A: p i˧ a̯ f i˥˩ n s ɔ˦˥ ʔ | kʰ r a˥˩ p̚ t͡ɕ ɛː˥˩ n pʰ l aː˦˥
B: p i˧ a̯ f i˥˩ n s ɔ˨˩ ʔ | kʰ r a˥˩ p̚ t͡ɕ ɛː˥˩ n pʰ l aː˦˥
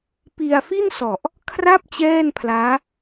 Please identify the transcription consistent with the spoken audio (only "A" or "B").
B